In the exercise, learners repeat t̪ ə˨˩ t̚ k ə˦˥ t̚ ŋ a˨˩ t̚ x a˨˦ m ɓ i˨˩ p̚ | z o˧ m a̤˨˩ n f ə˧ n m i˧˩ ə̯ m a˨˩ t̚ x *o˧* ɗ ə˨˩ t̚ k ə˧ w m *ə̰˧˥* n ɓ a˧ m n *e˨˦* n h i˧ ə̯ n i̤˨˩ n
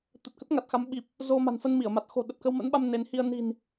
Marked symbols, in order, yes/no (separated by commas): no, yes, yes